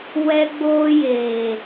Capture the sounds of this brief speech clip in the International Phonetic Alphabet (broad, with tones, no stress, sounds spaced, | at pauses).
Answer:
w ɛ˦ ɡ͡b oː˦ j eː˨